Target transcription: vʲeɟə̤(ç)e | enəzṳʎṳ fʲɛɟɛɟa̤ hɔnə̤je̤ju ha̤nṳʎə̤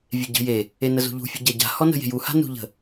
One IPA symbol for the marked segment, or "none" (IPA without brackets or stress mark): j